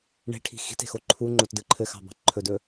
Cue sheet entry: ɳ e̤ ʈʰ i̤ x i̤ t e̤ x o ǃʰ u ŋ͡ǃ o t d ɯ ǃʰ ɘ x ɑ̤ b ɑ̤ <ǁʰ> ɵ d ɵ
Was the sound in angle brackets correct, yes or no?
no